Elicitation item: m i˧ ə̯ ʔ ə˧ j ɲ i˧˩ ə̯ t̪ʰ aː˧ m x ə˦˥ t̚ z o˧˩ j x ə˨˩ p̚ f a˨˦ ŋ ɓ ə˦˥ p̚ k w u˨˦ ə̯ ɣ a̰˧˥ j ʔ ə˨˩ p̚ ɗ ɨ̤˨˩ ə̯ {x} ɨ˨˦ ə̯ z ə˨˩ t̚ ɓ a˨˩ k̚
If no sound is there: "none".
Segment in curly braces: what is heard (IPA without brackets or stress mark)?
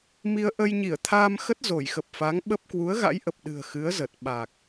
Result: x